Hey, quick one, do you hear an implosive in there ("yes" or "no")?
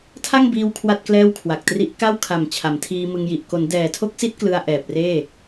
no